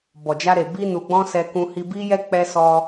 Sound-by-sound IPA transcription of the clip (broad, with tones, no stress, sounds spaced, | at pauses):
b ɔ˨ d͡ʒ a˧ ɾ e˨ b i˧ n u˨ ɡ͡b ɔ̃˧ s ɛ˧ k ũ˧ h i˧ b i˧ j ɛ˧ k͡p ɛ˧ s ɔ˧